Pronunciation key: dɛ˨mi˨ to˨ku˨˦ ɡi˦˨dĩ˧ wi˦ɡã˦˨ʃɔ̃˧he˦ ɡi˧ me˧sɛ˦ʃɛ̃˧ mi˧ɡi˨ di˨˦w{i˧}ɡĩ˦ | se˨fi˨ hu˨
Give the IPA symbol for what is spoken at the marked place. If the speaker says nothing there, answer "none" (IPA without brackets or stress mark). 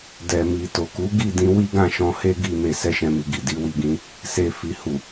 i˧